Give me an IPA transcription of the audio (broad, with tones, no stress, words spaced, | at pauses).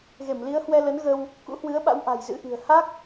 ɣe˧˩mli˨˦ə̯hwɛ˧lə˨˦n ɣə˧w | kṵ˧˥hwɨ˨˦ə̯ɓa̰˧˥w ʔa̤˨˩jzɨ̰˧˥ʔi̤˨˩ə̯ ha˦˥k̚